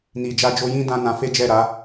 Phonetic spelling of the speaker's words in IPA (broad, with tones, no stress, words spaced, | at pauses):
ni˨d͡ʒa˧d͡ʒo˧jĩ˦ dã˦nã˧ fe˦d͡ʒɛ˦˨ɾa˨˦